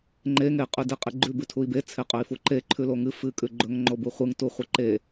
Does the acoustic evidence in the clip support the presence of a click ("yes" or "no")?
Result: yes